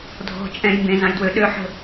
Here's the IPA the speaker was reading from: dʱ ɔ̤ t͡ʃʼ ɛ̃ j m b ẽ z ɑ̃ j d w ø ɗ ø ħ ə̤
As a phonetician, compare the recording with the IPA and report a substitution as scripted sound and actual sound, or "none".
none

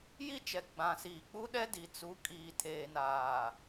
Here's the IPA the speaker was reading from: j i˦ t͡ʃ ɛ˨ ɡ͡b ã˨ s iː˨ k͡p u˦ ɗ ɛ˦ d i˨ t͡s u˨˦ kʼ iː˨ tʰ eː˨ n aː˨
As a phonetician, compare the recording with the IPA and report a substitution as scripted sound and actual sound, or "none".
none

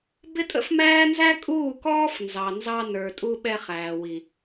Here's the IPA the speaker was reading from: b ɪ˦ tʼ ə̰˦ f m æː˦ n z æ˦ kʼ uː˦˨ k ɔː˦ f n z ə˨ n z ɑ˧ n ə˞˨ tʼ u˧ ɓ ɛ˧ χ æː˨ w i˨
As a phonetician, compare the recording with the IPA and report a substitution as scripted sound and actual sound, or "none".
ə˨ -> ɑ˨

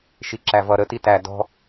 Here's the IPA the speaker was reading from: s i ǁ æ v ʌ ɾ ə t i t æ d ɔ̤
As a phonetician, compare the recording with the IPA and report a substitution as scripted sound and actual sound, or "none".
s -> ʃ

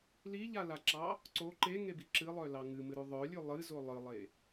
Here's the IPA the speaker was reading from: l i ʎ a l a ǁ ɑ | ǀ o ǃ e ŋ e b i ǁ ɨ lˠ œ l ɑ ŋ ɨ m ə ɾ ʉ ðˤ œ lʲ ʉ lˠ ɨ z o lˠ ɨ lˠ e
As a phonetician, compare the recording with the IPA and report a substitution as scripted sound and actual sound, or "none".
ə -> ɨ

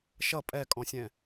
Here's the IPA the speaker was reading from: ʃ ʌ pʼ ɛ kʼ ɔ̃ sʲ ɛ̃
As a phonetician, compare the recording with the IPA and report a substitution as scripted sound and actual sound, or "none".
none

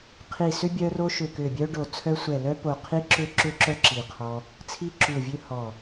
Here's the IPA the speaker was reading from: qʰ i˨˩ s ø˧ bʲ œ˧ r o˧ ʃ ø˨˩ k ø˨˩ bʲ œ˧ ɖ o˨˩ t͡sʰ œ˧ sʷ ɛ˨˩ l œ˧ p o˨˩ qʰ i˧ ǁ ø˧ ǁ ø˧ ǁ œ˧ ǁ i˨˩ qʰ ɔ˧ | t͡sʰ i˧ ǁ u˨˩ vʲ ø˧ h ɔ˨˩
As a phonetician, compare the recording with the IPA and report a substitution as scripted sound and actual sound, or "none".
none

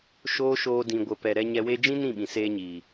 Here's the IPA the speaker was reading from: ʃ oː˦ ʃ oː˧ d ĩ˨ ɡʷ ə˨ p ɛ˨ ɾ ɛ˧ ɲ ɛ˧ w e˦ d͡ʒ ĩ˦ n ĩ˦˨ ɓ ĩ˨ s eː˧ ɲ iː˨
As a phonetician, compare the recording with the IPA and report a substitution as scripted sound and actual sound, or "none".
none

